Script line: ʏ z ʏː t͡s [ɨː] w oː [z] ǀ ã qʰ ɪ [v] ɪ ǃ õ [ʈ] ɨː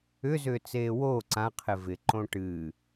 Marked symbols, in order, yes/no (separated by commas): no, no, yes, yes